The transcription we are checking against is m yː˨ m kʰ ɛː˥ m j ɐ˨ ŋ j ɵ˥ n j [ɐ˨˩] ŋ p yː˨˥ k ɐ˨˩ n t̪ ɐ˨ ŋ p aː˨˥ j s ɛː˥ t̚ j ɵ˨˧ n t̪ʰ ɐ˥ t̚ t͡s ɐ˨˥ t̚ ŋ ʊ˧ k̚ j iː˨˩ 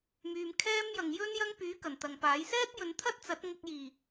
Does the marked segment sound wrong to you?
yes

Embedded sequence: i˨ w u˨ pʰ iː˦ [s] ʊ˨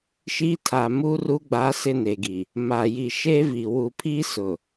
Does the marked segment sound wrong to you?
no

